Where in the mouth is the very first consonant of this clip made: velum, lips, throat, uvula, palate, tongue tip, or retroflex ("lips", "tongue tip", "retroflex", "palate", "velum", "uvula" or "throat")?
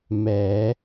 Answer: lips